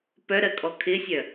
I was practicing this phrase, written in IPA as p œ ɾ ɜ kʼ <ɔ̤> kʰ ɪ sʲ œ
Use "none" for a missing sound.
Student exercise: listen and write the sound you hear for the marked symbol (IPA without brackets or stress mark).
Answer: ɔ